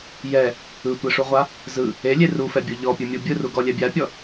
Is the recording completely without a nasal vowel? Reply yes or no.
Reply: yes